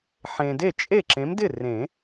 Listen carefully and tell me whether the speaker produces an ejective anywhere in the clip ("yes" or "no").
yes